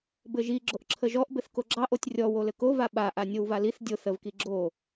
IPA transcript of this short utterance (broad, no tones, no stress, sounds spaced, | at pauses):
b ɘ ʒ i ɡ͡ǁ o ʔ ǁʰ ə ʒ ɔ ʔ b ɘ θ k o ɡ͡ǁ ɑ ʔ o tʲ rʲ ɔ w o l ɘ k o v a ɓ a ʔ a nʲ o w v a l i θ dʲ o θ ə v k i ɡ͡ǁ o